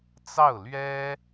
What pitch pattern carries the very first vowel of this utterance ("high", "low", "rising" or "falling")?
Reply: falling